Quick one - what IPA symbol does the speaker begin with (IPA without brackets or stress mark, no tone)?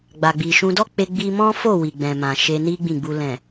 ɡ͡b